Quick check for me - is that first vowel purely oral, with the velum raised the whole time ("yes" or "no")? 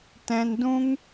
no